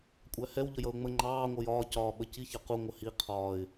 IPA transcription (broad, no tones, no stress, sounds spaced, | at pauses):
kʷʼ æ h ɛ w ʎ ə j ʌ ʊ̯ ŋ͡m ə ŋ͡ǃ ɑː ŋʷ ʌ j ɒː c ɒː ɓ ə c i ç ʌ q u ŋʷ ə h i qʰ ɒː ɪ̯